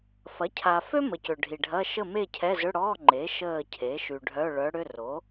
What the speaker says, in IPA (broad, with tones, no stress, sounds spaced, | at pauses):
f ɐ˩˥ cʰ a˨ f ø˥ m ə˨ c ʏ˨ ɖʱ i˨ ɖʱ ɐ˧˥˧ ʃ ə˥˨ m e˥˨ cʰ ɛ˧˥˧ z ʏ˧˥˧ ɽ ɔ˧˥˧ ŋ͡ǃ e˩˥ ʃ əː˥˨ cʰ e˩˥ ʃ y˨ ɖʱ œ˧˥˧ ɭ œ˧˥ ɽ ʏ˧˥˧ r o˩˥